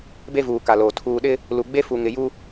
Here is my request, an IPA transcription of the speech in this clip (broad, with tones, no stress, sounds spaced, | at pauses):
b e˦ v uː˨ k a˨ l oː˨ tʰ uː˨ ɗ ɪ˦ | l u˨ ɡ͡b e˦ f u˨ ŋ ɪ˨ j u˦